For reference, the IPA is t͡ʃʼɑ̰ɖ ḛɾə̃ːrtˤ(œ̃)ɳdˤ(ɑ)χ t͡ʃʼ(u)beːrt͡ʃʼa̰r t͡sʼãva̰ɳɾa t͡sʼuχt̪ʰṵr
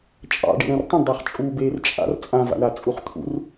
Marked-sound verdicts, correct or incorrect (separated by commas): incorrect, correct, incorrect